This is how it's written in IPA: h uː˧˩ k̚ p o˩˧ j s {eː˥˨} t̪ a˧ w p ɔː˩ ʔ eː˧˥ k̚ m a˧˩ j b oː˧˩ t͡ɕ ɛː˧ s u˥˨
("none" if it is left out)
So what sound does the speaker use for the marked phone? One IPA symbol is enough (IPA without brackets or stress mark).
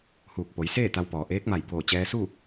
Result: eː˥˨